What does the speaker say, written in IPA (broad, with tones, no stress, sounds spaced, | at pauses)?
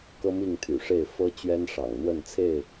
k ɤ˦ m i˥˨ ŋ t̪ʰ y̰˨˩ ʂ e˥˨ ɪ̯ f ɤ˦ t͡ɕ ɥ ɛ˦ n ʂ ɑ̰˨˩ ŋ n̪ w ə˥˨ n t͡sʰ e˥˨ ɪ̯